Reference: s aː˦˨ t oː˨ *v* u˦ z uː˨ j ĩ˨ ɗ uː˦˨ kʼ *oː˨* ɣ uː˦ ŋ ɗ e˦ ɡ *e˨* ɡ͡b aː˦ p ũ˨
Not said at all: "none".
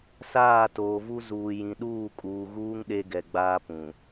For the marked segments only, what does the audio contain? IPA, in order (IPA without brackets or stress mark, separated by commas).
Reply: v, uː˨, ɛ˨